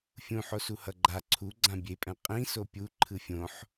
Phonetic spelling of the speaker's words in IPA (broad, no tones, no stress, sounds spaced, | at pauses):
fʲ ũ ħ o s u h ʌ ɡ͡ǃ a ǀʰ u ɡ͡ǀ ã bʲ e pʼ ɛ̃ qʼ ĩ s o pʲ u ǃʰ ɯ fʲ õ ħ